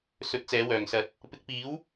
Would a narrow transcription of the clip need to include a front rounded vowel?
yes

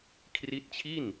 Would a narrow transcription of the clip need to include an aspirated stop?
yes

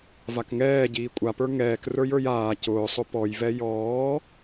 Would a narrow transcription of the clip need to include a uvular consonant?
no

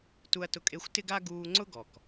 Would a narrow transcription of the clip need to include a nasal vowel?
no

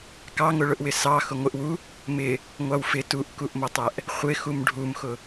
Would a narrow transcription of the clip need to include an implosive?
no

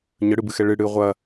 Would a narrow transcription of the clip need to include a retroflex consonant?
yes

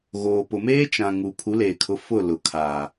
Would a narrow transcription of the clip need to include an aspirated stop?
yes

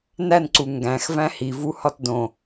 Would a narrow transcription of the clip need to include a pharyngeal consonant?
no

